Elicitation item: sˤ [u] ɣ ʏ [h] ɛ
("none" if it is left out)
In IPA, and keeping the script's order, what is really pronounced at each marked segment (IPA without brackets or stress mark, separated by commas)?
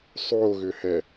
o, h